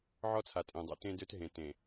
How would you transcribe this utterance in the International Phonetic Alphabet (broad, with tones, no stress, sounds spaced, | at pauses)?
ʕ ɔ˦ t͡sʰ a˨ tʼ ẽ˨ dˤ o̰˦ t ẽ˦ d ø˦ t ɦ ẽ˨ t ẽ˨